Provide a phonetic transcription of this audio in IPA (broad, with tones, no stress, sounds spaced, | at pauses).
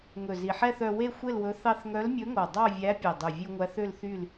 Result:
ŋ ɵ˨˩ z i˨˩ ħ ɛ˥˨ θ œ˧ w e˥˨ xʷ e˥˨ l w ɵ˧˥ θ ɑ˥˨ θ ŋ œ˧˥ l mʲ ɵ˧˥ ŋ o˨˩ dˤ ɑ˥˨ vʲ æ˧˥ pʲ e˨˩ dˤ ʉ˨˩ vʲ ʉ˧ ŋʷ æ˧˥ θ ø˥˨ l θ y˥˨ l